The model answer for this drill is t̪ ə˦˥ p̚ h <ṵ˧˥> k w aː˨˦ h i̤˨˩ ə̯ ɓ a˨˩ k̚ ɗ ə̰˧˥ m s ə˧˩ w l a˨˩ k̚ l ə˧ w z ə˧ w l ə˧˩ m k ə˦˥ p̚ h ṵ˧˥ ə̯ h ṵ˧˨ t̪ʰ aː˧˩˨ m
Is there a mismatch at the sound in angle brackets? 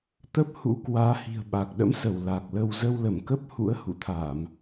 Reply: no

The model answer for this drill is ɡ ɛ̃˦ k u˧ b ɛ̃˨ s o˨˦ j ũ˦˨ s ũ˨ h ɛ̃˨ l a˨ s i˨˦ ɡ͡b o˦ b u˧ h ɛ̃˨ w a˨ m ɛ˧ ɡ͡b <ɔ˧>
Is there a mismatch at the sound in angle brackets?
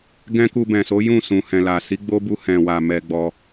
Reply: no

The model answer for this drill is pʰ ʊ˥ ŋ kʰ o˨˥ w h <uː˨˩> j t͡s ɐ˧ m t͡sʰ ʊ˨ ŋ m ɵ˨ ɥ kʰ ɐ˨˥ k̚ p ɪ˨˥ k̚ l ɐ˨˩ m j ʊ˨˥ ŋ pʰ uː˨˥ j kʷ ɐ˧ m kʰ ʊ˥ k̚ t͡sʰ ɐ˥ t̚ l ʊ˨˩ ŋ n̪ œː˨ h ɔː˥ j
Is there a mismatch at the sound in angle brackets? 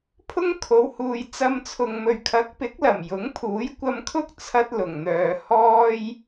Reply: yes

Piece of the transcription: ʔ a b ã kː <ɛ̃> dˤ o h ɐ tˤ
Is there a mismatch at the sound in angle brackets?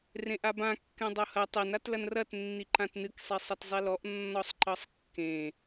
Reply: no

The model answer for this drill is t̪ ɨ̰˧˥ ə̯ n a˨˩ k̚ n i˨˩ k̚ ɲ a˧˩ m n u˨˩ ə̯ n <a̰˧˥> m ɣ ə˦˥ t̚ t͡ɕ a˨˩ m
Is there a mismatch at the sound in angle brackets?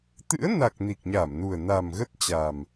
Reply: yes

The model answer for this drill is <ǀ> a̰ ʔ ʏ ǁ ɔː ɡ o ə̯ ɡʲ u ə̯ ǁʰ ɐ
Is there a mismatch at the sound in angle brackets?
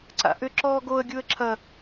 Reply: no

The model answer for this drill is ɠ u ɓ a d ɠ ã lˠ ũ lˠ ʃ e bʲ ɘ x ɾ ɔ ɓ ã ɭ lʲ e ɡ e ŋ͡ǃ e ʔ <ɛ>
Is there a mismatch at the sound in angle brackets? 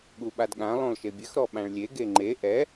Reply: no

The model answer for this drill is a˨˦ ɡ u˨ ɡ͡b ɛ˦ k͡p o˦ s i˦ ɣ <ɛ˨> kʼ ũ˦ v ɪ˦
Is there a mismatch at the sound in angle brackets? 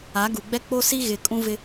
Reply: yes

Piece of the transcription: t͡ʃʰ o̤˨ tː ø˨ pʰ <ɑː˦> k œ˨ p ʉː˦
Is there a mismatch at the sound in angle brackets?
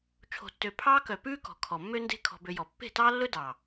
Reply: no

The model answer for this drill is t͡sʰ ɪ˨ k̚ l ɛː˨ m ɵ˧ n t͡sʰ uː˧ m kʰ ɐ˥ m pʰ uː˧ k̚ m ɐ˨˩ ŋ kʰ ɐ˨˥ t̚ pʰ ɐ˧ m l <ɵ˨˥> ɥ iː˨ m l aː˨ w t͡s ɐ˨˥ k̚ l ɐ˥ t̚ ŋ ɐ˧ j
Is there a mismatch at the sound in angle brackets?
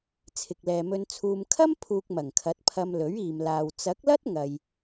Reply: no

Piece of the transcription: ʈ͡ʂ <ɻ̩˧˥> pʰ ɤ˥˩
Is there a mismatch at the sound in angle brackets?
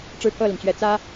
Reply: yes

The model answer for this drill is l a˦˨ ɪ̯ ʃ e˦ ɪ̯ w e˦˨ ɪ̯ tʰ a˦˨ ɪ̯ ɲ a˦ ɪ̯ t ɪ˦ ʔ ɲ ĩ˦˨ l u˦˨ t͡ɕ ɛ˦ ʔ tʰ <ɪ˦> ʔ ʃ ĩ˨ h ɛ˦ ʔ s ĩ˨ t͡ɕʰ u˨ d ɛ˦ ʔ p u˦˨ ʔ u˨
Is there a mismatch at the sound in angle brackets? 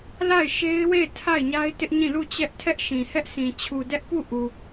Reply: yes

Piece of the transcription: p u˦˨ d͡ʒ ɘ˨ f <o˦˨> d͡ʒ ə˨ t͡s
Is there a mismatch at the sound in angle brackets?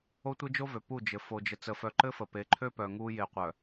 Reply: yes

